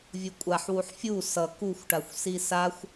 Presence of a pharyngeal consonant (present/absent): present